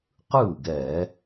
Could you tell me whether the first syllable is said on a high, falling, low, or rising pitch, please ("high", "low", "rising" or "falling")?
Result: falling